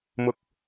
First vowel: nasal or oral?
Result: oral